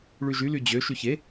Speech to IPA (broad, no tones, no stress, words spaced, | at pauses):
ɭyʒy lyd͡ʑø ʃyçe